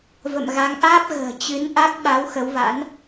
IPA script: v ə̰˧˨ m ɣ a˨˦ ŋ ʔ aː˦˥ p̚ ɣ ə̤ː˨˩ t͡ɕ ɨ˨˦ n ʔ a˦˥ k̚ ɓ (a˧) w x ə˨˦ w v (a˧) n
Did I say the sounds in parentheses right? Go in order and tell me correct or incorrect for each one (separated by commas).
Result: incorrect, incorrect